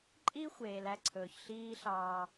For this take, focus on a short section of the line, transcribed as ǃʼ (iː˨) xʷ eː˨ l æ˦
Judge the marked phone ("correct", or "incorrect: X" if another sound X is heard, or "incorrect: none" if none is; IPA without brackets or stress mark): incorrect: iː˦